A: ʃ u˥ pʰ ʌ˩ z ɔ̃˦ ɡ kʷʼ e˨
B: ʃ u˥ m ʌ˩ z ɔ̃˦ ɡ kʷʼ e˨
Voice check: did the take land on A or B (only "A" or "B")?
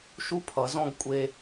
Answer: A